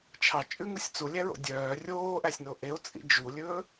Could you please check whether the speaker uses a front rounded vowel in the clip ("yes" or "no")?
yes